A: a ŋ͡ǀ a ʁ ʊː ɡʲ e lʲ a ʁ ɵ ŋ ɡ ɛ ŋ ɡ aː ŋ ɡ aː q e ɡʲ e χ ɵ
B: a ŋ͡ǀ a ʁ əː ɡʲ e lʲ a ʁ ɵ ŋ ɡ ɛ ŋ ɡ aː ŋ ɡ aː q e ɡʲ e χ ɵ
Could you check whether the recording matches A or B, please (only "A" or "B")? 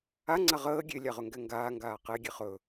B